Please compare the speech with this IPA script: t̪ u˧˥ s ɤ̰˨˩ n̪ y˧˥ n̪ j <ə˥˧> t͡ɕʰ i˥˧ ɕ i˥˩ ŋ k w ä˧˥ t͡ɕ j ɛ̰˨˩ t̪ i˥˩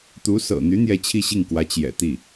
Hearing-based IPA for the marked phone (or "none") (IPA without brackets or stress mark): ɛ˥˧